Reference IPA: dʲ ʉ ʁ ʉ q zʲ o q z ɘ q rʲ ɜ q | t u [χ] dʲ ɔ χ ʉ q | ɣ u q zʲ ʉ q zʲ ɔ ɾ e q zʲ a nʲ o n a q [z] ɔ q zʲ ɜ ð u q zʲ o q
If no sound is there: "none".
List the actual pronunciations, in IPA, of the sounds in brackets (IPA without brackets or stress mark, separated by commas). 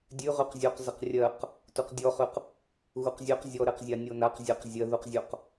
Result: q, zʲ